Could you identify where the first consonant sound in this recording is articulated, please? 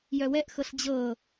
palatal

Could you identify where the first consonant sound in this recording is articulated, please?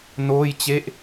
alveolar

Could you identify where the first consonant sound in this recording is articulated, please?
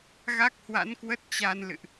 velar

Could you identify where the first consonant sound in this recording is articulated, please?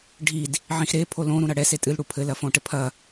retroflex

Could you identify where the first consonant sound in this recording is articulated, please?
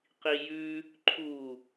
uvular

